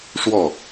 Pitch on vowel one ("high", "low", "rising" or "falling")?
falling